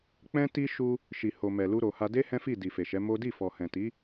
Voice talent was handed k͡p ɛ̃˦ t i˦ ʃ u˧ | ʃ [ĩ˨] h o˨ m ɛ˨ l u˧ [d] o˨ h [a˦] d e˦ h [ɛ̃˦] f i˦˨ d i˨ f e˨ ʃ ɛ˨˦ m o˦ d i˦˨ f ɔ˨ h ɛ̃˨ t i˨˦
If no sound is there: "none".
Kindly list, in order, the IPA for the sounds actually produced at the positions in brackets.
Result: i˨, ɾ, a˧, ɛ̃˦

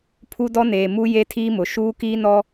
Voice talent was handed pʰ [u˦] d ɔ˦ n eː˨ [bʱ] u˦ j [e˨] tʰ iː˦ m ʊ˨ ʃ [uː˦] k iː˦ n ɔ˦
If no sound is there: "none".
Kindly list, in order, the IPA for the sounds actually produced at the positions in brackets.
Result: u˦, m, e˦, uː˦

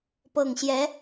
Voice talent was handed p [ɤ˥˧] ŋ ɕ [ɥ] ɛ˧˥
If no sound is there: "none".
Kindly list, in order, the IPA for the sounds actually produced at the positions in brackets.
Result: ɤ˨˩, j

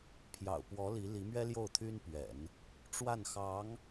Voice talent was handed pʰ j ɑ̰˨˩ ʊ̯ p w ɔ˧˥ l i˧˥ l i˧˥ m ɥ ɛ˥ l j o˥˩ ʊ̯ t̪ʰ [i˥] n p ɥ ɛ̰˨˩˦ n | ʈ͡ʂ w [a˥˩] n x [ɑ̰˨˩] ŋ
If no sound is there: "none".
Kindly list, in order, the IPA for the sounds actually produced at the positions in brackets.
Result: y˥, a˥˩, ɑ˧˥

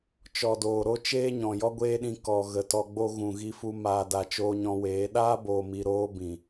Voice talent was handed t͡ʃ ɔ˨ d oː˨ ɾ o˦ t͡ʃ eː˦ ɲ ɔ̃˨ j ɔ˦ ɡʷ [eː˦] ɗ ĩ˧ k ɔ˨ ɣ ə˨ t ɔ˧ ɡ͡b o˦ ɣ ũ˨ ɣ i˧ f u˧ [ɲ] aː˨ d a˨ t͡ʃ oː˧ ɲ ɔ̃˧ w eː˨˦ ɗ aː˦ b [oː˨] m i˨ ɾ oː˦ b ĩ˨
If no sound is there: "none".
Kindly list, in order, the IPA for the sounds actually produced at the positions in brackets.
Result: eː˦, m, oː˨

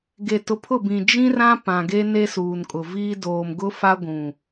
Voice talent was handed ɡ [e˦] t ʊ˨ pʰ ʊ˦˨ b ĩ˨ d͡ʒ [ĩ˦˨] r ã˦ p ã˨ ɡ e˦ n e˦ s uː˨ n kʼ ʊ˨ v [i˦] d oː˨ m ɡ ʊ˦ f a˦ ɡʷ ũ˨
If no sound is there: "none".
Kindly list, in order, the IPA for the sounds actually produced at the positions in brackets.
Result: e˨, ĩ˦, iː˦

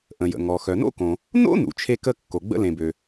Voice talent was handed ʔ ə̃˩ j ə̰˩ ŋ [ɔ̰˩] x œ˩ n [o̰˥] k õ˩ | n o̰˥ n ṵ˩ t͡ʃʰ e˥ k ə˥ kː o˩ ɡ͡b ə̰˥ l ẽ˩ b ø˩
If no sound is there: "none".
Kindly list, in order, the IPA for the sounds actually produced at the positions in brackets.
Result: ɔ˩, o̰˥

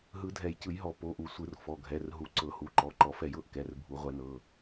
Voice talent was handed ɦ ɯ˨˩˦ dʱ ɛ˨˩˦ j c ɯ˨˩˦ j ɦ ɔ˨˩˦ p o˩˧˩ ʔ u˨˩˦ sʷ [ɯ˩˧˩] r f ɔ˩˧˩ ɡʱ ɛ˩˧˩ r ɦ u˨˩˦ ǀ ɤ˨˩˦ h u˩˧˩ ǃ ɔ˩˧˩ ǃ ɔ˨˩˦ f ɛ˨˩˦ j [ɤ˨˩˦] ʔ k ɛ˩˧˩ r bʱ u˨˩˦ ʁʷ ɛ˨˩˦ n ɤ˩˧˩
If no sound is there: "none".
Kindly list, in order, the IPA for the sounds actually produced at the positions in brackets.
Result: ɯ˨˩˦, ɤ˨˩˦

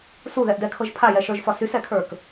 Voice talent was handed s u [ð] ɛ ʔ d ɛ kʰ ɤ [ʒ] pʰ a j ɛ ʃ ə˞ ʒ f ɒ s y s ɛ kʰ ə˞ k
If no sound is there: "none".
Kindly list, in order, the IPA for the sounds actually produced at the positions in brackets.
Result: ð, ʒ

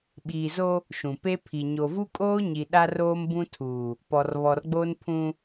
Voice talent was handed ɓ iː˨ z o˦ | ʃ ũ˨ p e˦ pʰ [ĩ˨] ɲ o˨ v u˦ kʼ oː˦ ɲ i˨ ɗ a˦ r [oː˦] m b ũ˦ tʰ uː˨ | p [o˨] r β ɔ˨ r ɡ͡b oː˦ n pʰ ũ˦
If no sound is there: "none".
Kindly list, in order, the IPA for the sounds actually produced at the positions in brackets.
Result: i˨, oː˦, ɔ˨

